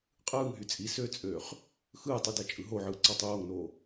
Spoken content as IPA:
qʼ ɯː ŋ ɦ y t͡sʼ i s ø t͡sʼ øː χ | x ɯː tˤ y d æ t͡ʃʼ ɯ ɦ o ʕ ɯː ǀ ɑ tˤ oː ŋ n oː

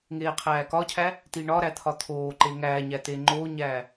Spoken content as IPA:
ŋ eː qʰ æː k ɒ cʰ æ | t i ɳ ɒ ɾ æ t̪ʰ ɒ t̪ʰ oː ǃ e ŋ æː ɲ æ t e ŋ͡ǃ oː ɲ æː

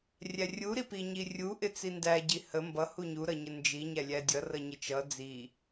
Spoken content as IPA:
rʲ æ rʲ u ɾ i p i ɲ i rʲ u ʔ ɪ t͡s i n d æ ɟ i h ə m b ʌ h u ɲ u ɾ ʌ ɲ ə n d͡ʒ i ɲ æ lʲ æ dʲ ʌ r ʌ ɲ ɪ t͡ʃ ʌ d͡z i

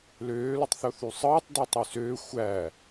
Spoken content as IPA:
l øː l u tˤ θ o θ y sˤ ɯː tˤ d y tˤ y s øː xʷ æ

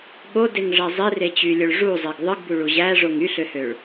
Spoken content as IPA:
ɠ o d e ŋ ʐ æ zˤ i r e t͡ɕ y lʲ o ɭ ʐ u zˤ e ɡ ðˤ ɯ ɡ b u ɭ u ʑ æ ʐ o ŋ y ɬ ø h ø ɭ

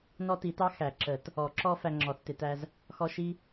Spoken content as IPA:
n ɔ˦ t i˨˩˦ t ɑ˦ x æ˨˩˦ ǁ ə˨˩˦ t | ɔ˨˩˦ ǁ ɔ˦ f æ˦ ŋ͡ǁ ɔ˨˩˦ θ t ɪ˨˩˦ t æ˦ z | x ɔ˦ ʃ i˦

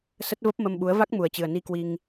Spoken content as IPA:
s ə˦˥ t̚ v ə˦˥ p̚ m ə˧ m ɓ u˨˦ ə̯ v a˦˥ k̚ m u˨˩ ə̯ t͡ɕ ɨ˨˩ ə̯ n i˧ k w i˧ ŋ

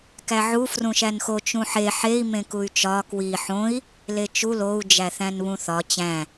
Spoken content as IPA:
k æ ʕ u f r ũ ʃ æ n x o t͡ʃ ũ ħ e ħ e i̯ m ẽ k u y̯ t͡ʃ ɒ k w i ħ õ i̯ | l e t͡ʃ u l o u̯ d͡ʒ æ θ æ̃ n β ũ θ ɒ t͡ɕ æ̃

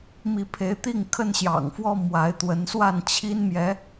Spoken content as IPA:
m i˨˦ pʰ e˨˦ ɪ̯ t̪ i˥˨ ŋ kʰ ə˦ n ɕ j ɑ̰˨˩ ŋ f w ɔ˦ m w a˨˦ ɪ̯ t̪ w ə˨˦ n s w a˥˨ n t͡ɕʰ i˦ n m j ɛ˨˦

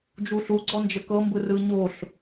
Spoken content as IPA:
d͡ʒ u ɬ u ɡ͡ǀ ɔ n d͡ʒ ə k ɤ m b ɯ r ɯ ɲ o ɬ

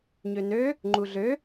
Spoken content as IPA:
ɲ ø n ø | ŋ͡ǃ u ɮ ø

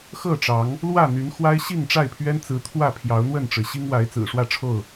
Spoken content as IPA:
x ɤ˥˨ ʈ͡ʂ ɑ˨˦ ŋ | l w ä˥˨ n̪ y˨˦ n x w a˦ ɪ̯ ɕ i˥˨ ŋ ʈ͡ʂ a˥˨ ɪ̯ pʰ ɥ ɛ˦ n t͡s ɹ̩˨˦ t̪ʰ w ä˥˨ pʰ j ɑ˨˦ ʊ̯ n̪ w ə˥˨ n ʈ͡ʂ ɻ̩˩ ɕ i˦ ŋ w a˨˦ ɪ̯ t͡s ɹ̩˨˩ ʂ w ä˥˨ ʈ͡ʂʰ o˥˨ ʊ̯

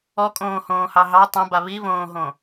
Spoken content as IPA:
ɔ kʼ õː h õː h ɑ ɦ ɑ tˤ ã b a β i β õː ɦ õ

